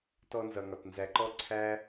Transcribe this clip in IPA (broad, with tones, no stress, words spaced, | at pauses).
tɔ˦nzʌ˨ŋɒ˨t nzæ˨ǃɔ˦ǀʰæ˦